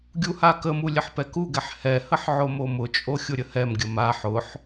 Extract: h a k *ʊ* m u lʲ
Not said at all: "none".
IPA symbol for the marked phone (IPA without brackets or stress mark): ə